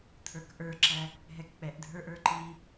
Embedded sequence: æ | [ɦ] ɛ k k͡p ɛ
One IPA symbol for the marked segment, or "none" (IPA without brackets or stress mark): ɦ